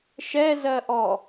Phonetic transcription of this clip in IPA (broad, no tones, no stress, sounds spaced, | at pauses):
ʃ ɛ z ɜ ʔ ɔ